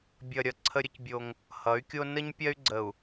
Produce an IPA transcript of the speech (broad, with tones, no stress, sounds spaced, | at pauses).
bʲ ʌ˨ ɾʲ ʌ˨ ǀʰ ə˦ ɾʲ ə˦ c bʲ o˦ ŋ | h ʌ˨˦ y̯ kʲ o˦ n ə˦ ɲ pʲ ɜ˦ y̯ ɡ͡ǀ ə˨ u̯